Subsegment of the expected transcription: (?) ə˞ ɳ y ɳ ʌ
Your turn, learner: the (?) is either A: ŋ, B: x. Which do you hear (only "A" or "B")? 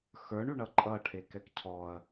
B